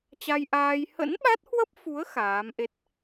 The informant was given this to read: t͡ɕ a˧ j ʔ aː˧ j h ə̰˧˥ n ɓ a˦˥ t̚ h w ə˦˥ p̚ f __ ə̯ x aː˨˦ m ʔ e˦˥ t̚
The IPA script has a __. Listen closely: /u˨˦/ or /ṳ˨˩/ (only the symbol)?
u˨˦